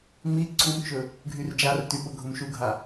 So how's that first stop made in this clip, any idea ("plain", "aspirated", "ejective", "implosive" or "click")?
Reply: click